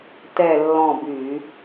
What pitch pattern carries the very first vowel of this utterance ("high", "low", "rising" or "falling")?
falling